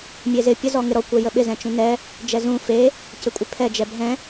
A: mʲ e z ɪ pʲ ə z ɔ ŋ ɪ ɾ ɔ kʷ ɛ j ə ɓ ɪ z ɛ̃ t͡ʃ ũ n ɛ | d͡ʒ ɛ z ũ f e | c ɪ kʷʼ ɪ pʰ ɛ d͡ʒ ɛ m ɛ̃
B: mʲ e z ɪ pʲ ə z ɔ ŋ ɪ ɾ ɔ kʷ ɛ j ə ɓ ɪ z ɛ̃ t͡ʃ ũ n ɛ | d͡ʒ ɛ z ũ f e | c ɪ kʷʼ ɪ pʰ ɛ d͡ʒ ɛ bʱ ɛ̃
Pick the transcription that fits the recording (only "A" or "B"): B